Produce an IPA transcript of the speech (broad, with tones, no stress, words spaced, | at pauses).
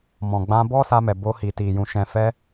mɔ̃˨ɡ͡bã˧ bɔ˦sa˧mɛ˨ bo˧ hi˨ti˨jũ˨ ʃɛ̃˨fɛ˧